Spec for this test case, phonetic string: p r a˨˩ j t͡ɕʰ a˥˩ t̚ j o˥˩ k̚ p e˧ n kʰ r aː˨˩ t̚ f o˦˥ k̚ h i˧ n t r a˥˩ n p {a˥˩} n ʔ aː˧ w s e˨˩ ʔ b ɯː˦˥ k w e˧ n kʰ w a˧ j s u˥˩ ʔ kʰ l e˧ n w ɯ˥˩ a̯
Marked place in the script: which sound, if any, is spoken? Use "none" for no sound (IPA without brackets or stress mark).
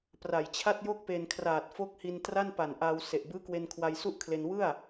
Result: a˨˩